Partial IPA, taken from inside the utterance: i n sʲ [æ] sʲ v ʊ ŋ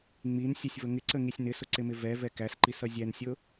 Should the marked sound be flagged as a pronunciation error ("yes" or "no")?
yes